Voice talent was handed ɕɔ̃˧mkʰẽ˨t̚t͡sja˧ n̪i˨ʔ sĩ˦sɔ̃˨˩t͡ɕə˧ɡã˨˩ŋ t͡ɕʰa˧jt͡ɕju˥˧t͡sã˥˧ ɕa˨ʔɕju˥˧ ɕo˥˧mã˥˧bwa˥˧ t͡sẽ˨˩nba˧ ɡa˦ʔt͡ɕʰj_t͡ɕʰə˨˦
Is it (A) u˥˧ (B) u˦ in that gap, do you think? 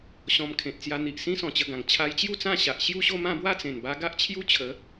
B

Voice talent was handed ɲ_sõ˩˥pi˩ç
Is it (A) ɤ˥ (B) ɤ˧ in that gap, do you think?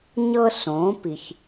A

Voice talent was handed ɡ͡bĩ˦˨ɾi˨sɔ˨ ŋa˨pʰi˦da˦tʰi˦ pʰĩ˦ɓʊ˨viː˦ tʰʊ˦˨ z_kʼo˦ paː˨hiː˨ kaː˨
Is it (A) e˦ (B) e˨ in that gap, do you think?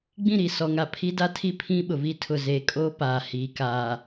B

